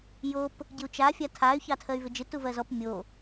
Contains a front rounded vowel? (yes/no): yes